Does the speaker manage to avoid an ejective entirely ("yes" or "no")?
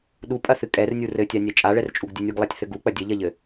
no